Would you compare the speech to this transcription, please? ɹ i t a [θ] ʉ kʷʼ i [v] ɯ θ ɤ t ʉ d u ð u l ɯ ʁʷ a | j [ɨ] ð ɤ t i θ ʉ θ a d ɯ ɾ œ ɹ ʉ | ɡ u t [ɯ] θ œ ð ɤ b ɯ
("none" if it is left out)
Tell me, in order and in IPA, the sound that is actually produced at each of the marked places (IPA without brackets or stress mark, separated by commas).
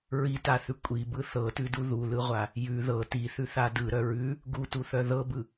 θ, b, ʉ, u